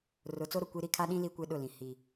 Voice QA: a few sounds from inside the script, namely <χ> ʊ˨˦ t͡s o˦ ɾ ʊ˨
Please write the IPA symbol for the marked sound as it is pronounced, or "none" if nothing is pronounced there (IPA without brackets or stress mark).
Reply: r